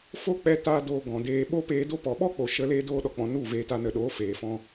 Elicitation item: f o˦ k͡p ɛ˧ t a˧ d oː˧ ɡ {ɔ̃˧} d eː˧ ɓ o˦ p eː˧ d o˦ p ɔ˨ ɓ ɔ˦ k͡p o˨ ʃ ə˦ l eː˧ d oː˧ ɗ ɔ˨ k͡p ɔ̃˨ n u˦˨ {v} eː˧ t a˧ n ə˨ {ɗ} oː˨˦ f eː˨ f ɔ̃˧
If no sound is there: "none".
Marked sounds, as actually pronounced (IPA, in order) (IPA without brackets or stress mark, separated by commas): ɔ̃˨, v, ɗ